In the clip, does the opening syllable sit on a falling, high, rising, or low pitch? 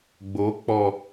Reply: rising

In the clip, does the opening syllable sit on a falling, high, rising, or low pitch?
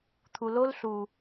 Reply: low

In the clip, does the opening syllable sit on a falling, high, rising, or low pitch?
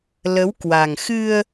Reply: rising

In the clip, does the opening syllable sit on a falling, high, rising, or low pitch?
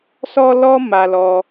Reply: high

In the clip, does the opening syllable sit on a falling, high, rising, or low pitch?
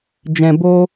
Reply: low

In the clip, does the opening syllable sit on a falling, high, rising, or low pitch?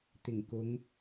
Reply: low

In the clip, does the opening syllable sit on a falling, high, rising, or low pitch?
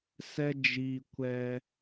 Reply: high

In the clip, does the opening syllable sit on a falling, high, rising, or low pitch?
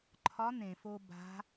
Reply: rising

